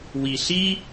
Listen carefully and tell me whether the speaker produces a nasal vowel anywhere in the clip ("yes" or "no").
no